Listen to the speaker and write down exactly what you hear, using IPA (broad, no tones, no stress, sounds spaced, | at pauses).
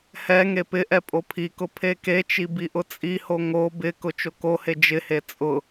h ɛ ŋ e p ɪ ʔ ɛ pʼ o pʰ i k ʊ pʰ e k e t͡ʃ i b i ʔ ʊ t͡sʼ i h o ŋ o b ɪ k ʊ t͡ʃ o k o h e d͡ʒ ɪ h e t͡sʼ ʊ